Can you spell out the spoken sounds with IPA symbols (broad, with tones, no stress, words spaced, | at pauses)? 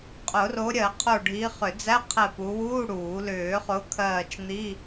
qʼʊ˨˩˦ro˨˦ɾʲɜ˨˩˦qʰo˧˩ ɖʱiː˨˦χʏ˨˩˦d͡zæ˧˥˧qʰɛ˧˩ pu˨˦wuː˧˥˧ɽuː˨˩˦ lʏː˨˩˦χʊː˨˦kʰɜː˧˩t͡ʃ n̪i˧˥˧